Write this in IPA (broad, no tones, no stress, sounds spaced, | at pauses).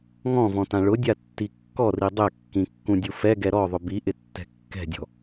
ŋ ɔ̃ v ɔ̃ t ã ɭ ʊ dʲ a tː i kː ɔ r i dˤ ɛ kː ĩ kː ũ dʲ u f ɛ ɡ ɛ ɾ ɔ ðˤ ʊ b i ʔ ɪ tː ɛ̤ kː ɛ̤ dʲ ɔ̤